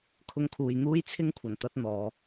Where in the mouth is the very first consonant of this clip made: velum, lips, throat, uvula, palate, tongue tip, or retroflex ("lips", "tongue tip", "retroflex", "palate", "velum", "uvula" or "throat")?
velum